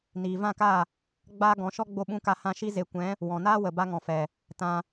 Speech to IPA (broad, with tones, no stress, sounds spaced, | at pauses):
n iː˨ v ã˦˨ k a˦˨ | ɡ͡b aː˦ ɡ ɔ̃˨˦ ʃ ɔ˦ ɡ͡b o˧ ɓ ũ˧ k a˧ h ã˧ ʃ i˦ z e˧ kʷ ɛ̃˨˦ | w ɔ̃˨ n aː˦ w ə˨ b a˧ ŋ ɔ̃˨ f ɛ˨ | t ã˧